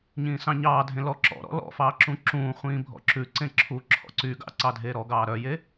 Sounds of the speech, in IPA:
ɲ ĩː s ɑ̃ ɲ ɑː dʱ ẽ l ɔ ǁ ɔ̰ ɾ ɔ̰ l ɔ̰ f ɑː ǁ ũ ǁ ũː χʷ ĩː bʱ ɔ̰ ǁ ʉ ǀ ẽ ǁʰ u ǁʰ ɔ̰ ǀ y ɡ ɑ̰ ǀ ɑ dʱ eː ɾ ɔ ɡ ɑː ɾ œ j e

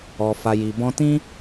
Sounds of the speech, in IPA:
ɔ˨ f a˨ j i˨ b ɔ̃˧ t ĩ˦

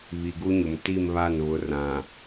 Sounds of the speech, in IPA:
β i˨ ɡ u˦ ɲ ʊ˨ m t i˦˨ m β a˦˨ n β ʊ˨˦ r ã˨

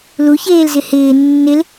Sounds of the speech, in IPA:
l u ç eː l z ɪ h ɪː nː ɪ l

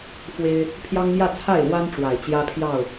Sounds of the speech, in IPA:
f w e˦ ɪ̯ | pʰ j ɑ˦ ŋ m j ä˥˨ t͡sʰ a˥˨ ɪ̯ l w a˦ n ʈ͡ʂ w a˨˩ ɪ̯ t͡ɕ j ä˦ pʰ j ɑ˥˨ ʊ̯

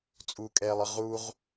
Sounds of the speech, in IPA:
t͡sʼ u kʼ ɛː lˠ ə ʁ u ʁ

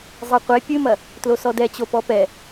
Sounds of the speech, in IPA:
zˤ e qʷ e pʲ ɨ m ɐ | t l o s ɔ d ɛ t͡ɕ o p ɔ p ɛ

